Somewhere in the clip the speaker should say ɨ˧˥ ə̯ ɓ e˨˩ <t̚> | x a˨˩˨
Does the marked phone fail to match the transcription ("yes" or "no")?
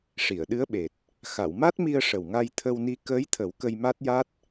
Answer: no